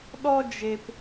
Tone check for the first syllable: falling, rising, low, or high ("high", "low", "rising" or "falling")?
high